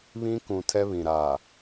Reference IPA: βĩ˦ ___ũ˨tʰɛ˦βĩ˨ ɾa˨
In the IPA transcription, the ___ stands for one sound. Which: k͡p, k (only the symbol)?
k